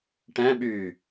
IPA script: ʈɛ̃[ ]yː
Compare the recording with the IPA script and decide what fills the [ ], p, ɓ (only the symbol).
ɓ